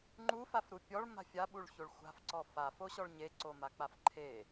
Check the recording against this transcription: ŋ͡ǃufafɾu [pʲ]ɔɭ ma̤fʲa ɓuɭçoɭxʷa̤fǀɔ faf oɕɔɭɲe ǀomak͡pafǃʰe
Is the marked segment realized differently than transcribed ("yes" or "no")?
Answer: no